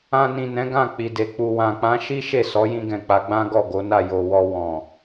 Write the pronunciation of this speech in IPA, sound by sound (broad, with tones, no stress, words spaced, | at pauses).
ã˧nĩ˨nɛ̃˨˦ ɡã˦˨k͡pi˨de˨ k͡pu˨wã˨k͡pã˨˦ʃi˦ ʃe˦˨ sɔ˨˦jĩ˧ɡɛ̃˨ k͡pa˨˦ɡ͡bã˦ ɡɔ˦˨ɡo˨˦na˦˨ jo˨wɔ˧ wɔ̃˨